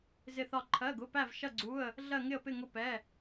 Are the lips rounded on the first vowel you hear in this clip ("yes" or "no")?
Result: no